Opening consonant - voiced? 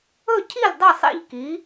no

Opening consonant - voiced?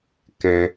no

